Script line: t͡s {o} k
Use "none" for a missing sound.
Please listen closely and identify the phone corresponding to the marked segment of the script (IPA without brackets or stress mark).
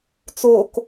o